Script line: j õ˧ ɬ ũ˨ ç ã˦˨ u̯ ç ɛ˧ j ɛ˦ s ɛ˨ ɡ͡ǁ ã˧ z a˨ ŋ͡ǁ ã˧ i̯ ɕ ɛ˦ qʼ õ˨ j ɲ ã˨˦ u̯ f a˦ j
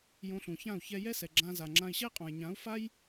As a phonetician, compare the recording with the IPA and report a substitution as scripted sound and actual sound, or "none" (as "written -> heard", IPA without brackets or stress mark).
none